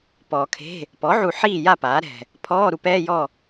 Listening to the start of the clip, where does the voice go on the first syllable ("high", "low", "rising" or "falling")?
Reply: low